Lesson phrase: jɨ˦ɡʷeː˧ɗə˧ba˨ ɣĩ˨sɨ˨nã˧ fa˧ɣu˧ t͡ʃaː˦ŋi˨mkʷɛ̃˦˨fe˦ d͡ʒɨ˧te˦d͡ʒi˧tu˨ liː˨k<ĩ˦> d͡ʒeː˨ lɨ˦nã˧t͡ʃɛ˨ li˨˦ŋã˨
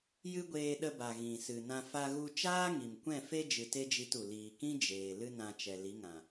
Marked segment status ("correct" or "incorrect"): correct